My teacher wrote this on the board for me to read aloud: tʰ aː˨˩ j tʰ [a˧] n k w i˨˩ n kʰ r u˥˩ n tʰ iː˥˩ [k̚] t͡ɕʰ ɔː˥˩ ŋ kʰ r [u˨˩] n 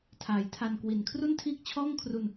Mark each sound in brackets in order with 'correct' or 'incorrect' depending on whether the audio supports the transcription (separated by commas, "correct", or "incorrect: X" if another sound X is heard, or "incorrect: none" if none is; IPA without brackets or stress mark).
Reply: correct, correct, incorrect: u˧